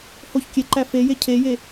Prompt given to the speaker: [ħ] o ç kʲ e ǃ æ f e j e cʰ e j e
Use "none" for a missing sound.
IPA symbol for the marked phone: h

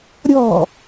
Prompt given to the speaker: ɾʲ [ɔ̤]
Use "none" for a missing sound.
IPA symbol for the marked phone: ɔ̤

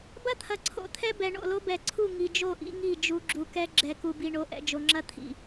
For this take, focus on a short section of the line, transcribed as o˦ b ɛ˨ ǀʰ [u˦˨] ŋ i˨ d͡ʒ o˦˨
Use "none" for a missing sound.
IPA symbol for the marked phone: u˦˨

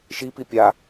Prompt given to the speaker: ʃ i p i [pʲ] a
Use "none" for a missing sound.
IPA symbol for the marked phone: pʲ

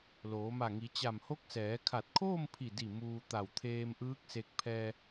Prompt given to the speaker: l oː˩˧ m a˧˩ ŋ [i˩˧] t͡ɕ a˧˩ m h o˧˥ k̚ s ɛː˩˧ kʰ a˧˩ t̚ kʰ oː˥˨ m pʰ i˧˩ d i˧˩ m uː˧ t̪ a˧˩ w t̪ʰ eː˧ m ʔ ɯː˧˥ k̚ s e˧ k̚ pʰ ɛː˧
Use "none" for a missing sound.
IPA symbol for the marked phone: i˩˧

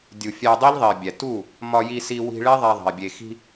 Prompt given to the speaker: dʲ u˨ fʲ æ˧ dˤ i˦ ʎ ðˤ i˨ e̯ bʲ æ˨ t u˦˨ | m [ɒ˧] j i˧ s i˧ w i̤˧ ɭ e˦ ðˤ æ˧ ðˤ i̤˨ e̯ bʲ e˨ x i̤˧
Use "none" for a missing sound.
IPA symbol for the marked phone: ɒ˧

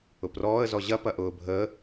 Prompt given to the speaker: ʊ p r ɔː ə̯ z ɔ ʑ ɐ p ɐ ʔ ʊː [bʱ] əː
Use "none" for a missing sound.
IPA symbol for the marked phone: bʱ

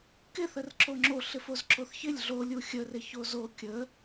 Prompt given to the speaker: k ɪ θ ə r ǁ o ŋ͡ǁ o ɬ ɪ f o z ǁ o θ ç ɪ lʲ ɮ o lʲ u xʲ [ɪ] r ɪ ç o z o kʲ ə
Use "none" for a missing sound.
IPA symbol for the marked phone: ə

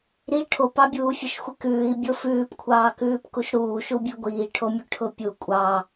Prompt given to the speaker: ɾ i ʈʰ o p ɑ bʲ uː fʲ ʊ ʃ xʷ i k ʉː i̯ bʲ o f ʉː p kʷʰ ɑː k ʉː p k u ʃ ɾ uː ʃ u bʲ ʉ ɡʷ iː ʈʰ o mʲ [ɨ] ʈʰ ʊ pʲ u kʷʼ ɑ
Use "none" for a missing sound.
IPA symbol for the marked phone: ʉ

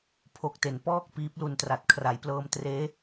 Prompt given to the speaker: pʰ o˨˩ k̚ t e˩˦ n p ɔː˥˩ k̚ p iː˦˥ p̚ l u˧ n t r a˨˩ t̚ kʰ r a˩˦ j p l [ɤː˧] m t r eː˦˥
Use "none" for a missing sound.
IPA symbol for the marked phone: ɤː˧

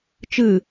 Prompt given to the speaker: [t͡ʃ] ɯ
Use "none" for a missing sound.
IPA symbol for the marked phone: t͡ʃ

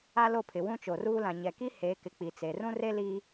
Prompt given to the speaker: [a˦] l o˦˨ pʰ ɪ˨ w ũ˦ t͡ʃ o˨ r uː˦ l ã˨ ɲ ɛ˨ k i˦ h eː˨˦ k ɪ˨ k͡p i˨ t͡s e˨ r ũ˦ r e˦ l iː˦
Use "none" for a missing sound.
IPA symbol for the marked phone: a˦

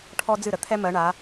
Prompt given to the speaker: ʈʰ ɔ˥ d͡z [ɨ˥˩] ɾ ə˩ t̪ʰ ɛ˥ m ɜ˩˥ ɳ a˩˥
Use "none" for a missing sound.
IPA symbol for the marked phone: ɨ˥˩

